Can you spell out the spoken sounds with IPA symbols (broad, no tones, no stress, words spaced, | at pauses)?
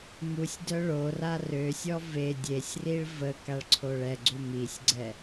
musʲdœ ɭora røsʲɔ ve dʲesʲriɭ və kaɭǀʰoɭɛɡ͡ǀu misʲɡ͡ǀɛ